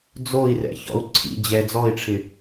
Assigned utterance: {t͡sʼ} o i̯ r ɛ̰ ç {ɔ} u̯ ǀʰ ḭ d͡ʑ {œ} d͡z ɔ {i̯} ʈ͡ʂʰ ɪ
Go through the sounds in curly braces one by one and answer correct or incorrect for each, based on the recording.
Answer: incorrect, incorrect, incorrect, correct

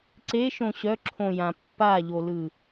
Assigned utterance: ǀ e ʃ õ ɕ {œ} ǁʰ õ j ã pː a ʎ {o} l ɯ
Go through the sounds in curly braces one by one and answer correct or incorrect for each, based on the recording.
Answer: correct, correct

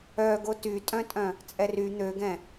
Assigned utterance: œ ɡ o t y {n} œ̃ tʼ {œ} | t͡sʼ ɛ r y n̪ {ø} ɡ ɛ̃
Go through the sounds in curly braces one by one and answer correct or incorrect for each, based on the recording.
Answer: incorrect, incorrect, correct

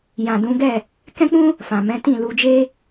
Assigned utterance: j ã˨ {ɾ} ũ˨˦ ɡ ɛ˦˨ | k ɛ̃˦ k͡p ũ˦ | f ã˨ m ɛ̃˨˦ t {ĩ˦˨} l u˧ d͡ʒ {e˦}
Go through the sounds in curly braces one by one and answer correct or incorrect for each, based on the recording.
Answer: incorrect, correct, correct

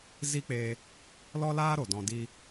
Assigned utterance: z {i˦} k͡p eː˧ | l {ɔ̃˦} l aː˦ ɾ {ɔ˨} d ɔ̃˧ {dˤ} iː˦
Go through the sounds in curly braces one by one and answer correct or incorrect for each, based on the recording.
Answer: correct, incorrect, incorrect, incorrect

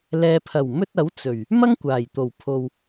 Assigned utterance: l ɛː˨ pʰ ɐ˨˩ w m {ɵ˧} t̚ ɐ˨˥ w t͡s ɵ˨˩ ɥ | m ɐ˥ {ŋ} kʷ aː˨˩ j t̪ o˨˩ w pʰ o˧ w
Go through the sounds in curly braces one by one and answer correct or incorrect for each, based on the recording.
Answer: correct, correct

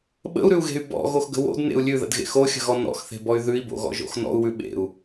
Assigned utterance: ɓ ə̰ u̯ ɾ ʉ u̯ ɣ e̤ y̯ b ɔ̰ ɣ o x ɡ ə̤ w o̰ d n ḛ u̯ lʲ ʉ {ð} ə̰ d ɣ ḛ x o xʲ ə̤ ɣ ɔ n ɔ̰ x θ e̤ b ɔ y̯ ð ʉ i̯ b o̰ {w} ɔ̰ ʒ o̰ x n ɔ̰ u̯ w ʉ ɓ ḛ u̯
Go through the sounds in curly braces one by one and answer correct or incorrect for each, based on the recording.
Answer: correct, incorrect

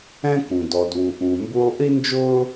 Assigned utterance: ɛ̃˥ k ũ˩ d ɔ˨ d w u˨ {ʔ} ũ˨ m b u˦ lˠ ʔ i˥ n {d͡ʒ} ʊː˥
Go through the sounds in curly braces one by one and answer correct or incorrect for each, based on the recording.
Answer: correct, correct

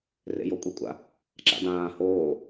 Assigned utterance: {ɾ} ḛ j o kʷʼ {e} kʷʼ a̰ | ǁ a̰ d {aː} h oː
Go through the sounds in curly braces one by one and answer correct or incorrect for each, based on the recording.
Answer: incorrect, correct, incorrect

